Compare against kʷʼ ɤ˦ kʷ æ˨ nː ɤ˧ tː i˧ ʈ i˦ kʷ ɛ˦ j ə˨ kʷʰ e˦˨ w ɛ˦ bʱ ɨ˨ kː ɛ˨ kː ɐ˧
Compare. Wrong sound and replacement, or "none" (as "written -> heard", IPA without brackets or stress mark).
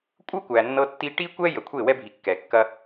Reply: ɨ˨ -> i˨